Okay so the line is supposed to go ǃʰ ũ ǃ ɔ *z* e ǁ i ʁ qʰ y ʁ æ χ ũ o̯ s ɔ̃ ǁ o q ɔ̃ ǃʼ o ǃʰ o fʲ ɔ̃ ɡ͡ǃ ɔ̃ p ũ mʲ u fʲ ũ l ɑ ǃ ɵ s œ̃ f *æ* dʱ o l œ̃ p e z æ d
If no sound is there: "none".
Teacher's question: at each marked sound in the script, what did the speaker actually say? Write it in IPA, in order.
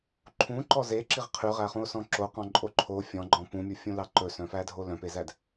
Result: z, æ

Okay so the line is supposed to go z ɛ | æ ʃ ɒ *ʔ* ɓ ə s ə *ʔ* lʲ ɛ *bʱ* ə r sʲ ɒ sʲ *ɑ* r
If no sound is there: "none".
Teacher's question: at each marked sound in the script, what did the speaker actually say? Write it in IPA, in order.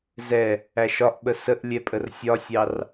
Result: ʔ, ʔ, pʼ, ɑ

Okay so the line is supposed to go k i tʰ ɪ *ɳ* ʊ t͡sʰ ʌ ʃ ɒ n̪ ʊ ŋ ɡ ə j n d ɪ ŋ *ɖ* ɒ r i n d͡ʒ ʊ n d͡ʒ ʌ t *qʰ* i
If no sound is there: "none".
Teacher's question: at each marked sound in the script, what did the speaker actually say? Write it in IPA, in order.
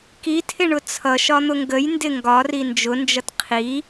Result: ɳ, ɡ, qʰ

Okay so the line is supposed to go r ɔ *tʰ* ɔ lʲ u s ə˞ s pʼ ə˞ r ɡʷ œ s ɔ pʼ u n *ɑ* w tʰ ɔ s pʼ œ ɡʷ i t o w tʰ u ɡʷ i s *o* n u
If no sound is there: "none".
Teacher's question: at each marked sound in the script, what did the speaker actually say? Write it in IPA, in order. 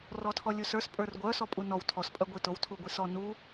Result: tʰ, ɔ, ɔ

